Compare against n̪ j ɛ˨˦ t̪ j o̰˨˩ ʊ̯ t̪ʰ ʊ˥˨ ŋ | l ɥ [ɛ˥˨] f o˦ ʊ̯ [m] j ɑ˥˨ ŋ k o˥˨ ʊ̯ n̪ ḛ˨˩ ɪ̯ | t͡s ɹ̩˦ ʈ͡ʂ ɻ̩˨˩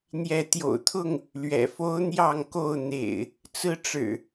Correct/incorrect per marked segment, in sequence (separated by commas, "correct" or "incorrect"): incorrect, incorrect